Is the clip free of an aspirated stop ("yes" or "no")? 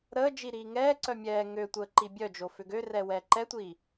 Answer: yes